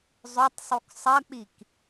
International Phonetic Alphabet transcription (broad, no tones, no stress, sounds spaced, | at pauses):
zˤ ɵ tˤ sˤ u k sˤ ɐ k͡p i k